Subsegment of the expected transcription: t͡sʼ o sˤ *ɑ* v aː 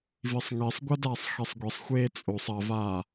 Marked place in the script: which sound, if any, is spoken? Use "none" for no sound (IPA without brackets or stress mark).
ɐ